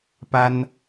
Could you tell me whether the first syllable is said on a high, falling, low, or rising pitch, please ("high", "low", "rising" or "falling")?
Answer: high